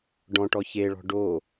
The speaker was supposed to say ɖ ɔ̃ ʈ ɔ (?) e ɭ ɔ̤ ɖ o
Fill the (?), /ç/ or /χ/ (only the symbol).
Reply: ç